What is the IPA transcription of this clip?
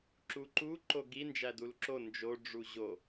ǁ u ǃ u ǃ o ɡ i n d͡ʒ æ d u l ǁ o n d͡ʒ o ɖ͡ʐ u ʑ o

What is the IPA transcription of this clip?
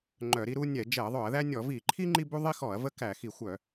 ŋ͡ǃ œ˧˩˧ ɾ i˦ ɾ u˦ nʲ ɛ˧˩˧ d͡ʒ ɛ˧˩˧ ɐ̯ ðˤ œ˧˩˧ ɐ̯ ð æ˦ nʲ ɔ˧˩˧ v i˧˩˧ ǃʰ i˦ ŋ͡ǃ i˦ b u˦ ðˤ i˦ x ɔ˧˩˧ ɐ̯ v ə˦ k æ˧˩˧ x i˧˩˧ xʷ œ˧˩˧

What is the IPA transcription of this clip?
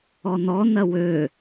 ɔ n ɔ n ɐ w ø

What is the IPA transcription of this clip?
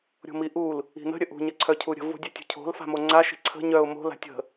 ɾʲ o̤ m i ʔ u l | i̤ n ə̤ ɾʲ ə ʔ ṳ ɲ ə ǀʰ œ cʰ u ɾʲ ə̤ v o̤ dʲ œ tʲ ṳ cʰ o̤ l f a̤ m o ŋ͡ǀ a ʃ i̤ ǀʰ ə̤ ɲ œ ʊ̯ m o̤ l a̤ tʲ ə̤

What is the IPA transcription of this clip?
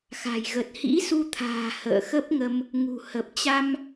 x a̤˨˩ j ɣ ə˨˩ t̚ h ḭ˧˥ s u˧ t̪ʰ a̤ː˨˩ h ə̰ː˧˨ x ə˦˥ p̚ ŋ ə˧ m | ŋ ṳ˨˩ h ə˨˩ p̚ t͡ɕ a˧ m

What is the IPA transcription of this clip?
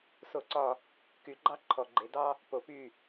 s o˧˩ ǀ ɒ˧˩ | k y˩˧ ɡ͡ǃ ɑ˥ ǃʰ ɔ˩ ɡ͡ǃ e˩ d ɑ˥ | p o˩ p y˧˩

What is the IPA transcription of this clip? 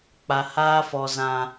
k͡p a˨ h aː˧ f ɔ˨ z ã˨

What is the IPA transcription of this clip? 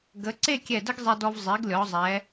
ɡ ə˩˧ ǀ e˥˧ kʲ ɛ˧˩ d ə˥ ɡ zˤ ɛ˧ d ɔ˧ v zˤ e˩˧ ɡ lʲ ɔ˩˧ zˤ ɛ˩˧

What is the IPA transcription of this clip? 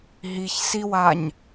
ɦ i ç s i w a ɲ

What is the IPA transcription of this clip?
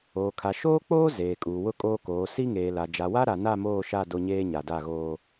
oː˨ kʰ a˨ ʃ oː˦ k͡p oː˦ z eː˨ kʼ uː˨ w ʊ˦ kʼ oː˦ k oː˨˦ s i˦ ŋ eː˨ l a˨ d͡ʒ a˨ w a˦ ɾ a˨ n a˦˨ m oː˦˨ ʃ a˦˨ d o˦ ɲ eː˦ ɲ a˨ d a˦˨ ɣ oː˦

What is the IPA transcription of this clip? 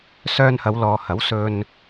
s œː˧ n h ɐ˨˧ w l ɔː˨ h ɐ˨˥ w s ɵ˧ n

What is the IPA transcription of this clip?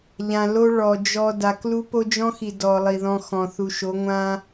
ʎ ã˨ l o˦ ɭ ɔ˨ d͡ʒ ɔ˦ d a˦ k l u˦ p o˦ d͡ʒ ɔ̃˦ x i˨ d ɔ˨ lˠ i˨ ð ɔ̃˦ x ɔ̃˨ θ u˨ ʃ o˨˦ ŋʷ ã˦

